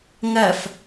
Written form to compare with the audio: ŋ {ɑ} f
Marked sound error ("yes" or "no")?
yes